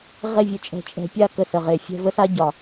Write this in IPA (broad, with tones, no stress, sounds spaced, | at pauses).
ʁ e˥˧ vʲ ə˧ t͡ʃʼ ɛ̤˧ t͡ʃʼ ɛ̤˧ pʲ a˥˧ k ə˧˩ s ə˧˩ ʁ e˧˩ fʲ ɛ̤˥˧ v ə˥ s a˥ ɟ ɒ˧˩